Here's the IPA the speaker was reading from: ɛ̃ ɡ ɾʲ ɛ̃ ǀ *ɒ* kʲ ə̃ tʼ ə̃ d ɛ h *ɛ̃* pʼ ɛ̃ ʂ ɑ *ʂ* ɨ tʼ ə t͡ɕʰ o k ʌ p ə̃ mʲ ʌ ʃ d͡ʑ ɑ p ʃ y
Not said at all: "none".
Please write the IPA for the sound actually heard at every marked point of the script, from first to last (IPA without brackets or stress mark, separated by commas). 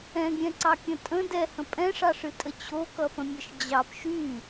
ɑ, ə̃, ʂ